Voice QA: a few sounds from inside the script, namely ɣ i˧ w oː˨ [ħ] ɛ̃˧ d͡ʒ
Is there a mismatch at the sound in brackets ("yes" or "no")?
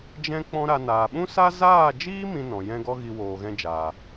yes